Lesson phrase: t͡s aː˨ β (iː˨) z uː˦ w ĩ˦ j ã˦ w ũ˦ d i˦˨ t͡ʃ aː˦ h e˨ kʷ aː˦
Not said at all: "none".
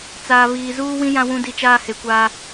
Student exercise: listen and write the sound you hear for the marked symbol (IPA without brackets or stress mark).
iː˨